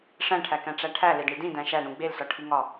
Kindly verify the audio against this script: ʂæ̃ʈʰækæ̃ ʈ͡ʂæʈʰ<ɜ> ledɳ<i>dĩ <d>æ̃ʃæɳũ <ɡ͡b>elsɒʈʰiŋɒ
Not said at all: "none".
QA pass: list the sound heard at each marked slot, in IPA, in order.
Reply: æ, i, d, ɡ͡b

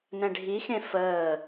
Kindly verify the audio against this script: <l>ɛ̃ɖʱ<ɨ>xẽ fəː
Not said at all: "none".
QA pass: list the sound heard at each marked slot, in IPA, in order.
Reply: n, i

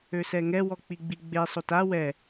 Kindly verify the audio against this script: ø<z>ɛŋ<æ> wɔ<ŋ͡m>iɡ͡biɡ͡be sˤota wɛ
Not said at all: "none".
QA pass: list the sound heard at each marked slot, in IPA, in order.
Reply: s, ɛ, k͡p

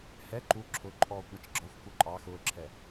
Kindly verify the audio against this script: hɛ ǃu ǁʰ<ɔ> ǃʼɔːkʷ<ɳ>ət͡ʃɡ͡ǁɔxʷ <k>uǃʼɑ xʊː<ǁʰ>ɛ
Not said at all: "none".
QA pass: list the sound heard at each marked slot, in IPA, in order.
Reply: ʊ, ɳ, k, ǁʰ

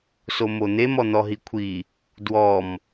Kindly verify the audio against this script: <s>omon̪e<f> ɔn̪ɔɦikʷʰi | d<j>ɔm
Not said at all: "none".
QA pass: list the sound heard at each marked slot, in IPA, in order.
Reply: s, m, w

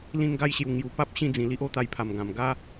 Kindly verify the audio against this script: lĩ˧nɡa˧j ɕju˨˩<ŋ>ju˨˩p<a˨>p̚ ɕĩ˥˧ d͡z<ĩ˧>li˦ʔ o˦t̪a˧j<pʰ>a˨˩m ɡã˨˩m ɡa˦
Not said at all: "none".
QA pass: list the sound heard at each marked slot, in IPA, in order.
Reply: ŋ, a˦, ĩ˧, pʰ

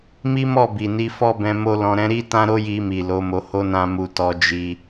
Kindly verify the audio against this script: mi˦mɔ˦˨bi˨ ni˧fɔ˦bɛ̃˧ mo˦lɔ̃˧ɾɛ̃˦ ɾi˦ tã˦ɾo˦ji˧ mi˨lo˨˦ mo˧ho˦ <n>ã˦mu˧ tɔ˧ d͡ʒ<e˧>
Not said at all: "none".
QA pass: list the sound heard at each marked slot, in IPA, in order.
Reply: n, i˧

